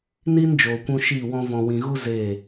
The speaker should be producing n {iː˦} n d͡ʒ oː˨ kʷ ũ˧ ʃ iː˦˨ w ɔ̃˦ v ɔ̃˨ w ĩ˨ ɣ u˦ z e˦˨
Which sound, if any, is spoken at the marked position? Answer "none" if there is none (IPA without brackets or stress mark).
iː˦